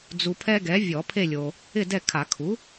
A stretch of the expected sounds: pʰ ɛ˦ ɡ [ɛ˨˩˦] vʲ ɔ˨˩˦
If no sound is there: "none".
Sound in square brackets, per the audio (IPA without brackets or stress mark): ɛ˩˥